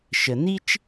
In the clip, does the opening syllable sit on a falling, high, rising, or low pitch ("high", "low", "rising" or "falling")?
low